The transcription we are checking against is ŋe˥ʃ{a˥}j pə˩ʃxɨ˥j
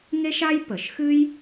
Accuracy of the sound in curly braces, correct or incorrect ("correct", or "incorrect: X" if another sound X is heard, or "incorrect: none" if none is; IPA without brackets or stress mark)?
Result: correct